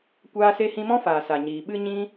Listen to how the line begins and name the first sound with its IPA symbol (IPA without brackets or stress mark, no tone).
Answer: kʷ